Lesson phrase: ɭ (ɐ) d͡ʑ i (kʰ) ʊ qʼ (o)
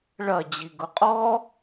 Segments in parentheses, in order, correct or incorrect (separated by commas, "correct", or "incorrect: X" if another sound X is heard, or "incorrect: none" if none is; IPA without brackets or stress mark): correct, incorrect: ɡ, incorrect: ɔ